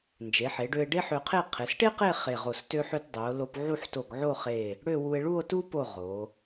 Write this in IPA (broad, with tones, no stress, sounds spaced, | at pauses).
n d͡ʒ e˩˧ ħ e˩˧ ɖ ø˧ e̯ ɖ e˥ ħ ø˧ qʰ e˥˧ qʰ e˩˧ s ʈ e˥ q e˥˧ χ e˧˩ ʁ o˧˩ s t ø˥ ħ ø˥ t dˤ ø˩˧ o̯ l o˧ p ʕ u˥˧ ħ t o˧˩ ɡ ʕ o˥˧ χ e˧˩ | ɽ ø˥˧ w u˧ e̯ ɭ u˥˧ o̯ t u˥ p o˧˩ ʁ o˩˧